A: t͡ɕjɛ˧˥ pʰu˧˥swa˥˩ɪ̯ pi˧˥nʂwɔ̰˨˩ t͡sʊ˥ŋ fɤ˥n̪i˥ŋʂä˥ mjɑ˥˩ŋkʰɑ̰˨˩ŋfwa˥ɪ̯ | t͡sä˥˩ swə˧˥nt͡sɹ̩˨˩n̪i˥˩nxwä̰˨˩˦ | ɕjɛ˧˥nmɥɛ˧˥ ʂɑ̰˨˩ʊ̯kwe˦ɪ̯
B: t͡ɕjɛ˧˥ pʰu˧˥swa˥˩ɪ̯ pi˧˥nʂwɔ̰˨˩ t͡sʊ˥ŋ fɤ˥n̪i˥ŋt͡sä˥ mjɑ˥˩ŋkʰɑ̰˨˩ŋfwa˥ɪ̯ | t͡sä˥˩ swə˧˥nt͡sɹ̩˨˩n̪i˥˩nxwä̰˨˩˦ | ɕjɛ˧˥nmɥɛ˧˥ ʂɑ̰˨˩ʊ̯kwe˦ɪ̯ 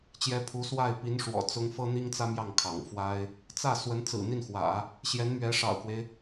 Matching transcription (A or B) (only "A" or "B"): B